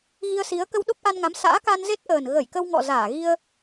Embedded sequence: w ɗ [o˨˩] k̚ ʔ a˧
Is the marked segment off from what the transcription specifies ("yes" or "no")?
yes